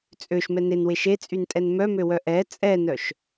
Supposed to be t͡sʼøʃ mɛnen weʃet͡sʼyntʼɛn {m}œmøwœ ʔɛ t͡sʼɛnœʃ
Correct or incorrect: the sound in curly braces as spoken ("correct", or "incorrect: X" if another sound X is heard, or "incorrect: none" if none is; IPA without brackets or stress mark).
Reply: correct